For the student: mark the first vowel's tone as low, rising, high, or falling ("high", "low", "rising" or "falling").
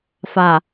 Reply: low